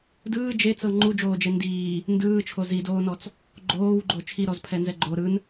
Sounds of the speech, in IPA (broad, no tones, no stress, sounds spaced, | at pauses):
d ɯː d͡ʒ e t͡s ɤ ŋ͡ǃ u d͡ʒ oː d͡ʒ e n d iː | n d ɯː t͡ʃʰ o z i d oː n ɔ t͡s | ɡ͡ǃ oː w ɡ͡ǃ o t͡ʃʰ i ɾ ɔ z pʰ ɛ n z ɛ ɡ͡ǃ o ɾ ɯ n